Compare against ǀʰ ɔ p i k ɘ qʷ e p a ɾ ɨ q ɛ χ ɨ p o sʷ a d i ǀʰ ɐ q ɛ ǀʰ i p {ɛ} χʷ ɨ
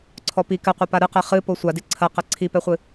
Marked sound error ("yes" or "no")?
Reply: no